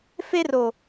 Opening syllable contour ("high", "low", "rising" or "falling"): high